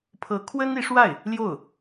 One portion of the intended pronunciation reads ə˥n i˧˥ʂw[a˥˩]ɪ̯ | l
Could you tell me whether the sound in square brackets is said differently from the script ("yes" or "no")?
no